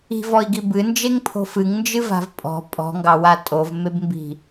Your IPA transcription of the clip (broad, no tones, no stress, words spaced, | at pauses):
i̤vɔi̯ɡi bɨnd͡ʒeŋpʰo̤ fɨŋnd͡ʒɨva̤v pʼɔ̤ pʼɔ̤ŋɡɑwa tʼovmebmbi̤